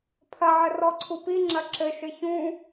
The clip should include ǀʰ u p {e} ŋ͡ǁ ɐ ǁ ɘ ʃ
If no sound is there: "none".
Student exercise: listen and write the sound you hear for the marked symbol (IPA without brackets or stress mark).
i